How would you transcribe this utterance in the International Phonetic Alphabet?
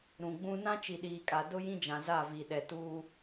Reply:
ɾũ˨ɡ͡bũ˦ nã˦t͡ʃi˨ɗiː˨kʼa˨ dʊ˦jĩ˦ d͡ʒã˨za˦˨vi˨ ɗɛ˨tuː˦

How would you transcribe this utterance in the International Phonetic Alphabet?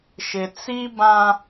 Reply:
ʃɪ˨t͡si˦bã˦

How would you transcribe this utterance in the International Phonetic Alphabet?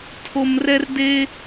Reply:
tʰo˦m rɛ˥r de˥

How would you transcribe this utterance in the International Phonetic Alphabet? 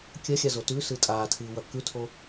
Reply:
kʲɐxʲazo tʉsɨ tʼaːtʰɨːwɐ kʉtʰo

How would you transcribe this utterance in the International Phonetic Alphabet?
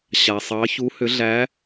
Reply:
ɕa˩sˤɑ˨˥çu˨˥hʏ˨˥ ɮæ˨˥

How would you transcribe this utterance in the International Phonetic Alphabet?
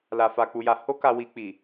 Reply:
la˨fa˨k͡pu˨ja˨˦ ho˦ka˧wi˧k͡pi˨

